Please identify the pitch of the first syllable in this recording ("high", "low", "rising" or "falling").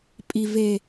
low